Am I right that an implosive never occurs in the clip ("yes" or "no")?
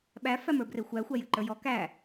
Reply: no